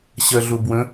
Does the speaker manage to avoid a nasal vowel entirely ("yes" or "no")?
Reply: no